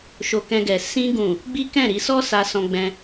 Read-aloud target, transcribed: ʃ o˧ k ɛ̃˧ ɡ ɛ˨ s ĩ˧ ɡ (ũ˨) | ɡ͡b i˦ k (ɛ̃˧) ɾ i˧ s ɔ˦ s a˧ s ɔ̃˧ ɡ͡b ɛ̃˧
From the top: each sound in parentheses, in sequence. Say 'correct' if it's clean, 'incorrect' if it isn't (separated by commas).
correct, incorrect